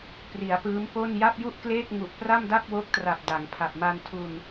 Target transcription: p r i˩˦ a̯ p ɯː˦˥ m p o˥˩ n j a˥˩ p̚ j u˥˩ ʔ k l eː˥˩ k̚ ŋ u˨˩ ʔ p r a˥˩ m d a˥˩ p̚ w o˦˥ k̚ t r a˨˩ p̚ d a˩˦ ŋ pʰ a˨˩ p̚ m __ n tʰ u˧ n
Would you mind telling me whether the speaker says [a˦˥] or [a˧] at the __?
a˧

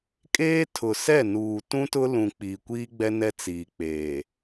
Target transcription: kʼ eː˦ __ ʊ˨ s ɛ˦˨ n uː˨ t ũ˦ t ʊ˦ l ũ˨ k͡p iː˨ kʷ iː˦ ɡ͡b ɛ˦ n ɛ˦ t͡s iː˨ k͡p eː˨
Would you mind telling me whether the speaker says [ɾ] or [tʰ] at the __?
tʰ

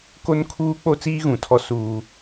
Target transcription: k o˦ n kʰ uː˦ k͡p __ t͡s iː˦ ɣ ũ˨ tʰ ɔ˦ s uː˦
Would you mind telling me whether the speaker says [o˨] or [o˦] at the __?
o˦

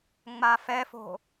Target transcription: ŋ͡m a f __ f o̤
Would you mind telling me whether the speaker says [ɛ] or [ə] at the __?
ɛ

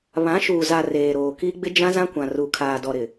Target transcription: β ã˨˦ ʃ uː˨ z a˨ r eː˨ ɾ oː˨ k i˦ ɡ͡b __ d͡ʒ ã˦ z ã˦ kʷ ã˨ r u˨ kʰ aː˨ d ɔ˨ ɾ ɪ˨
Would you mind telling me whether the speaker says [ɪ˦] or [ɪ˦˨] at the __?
ɪ˦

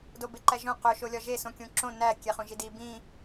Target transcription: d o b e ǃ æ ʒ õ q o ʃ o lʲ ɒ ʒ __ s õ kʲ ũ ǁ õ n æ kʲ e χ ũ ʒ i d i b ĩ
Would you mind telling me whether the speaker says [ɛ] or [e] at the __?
e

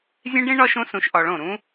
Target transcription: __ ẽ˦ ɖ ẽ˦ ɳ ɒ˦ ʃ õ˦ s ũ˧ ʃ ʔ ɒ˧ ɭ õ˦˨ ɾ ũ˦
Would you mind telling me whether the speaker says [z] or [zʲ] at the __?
zʲ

